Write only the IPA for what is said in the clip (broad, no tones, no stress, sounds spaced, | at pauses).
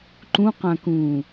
ǃ ũ q ã k ũː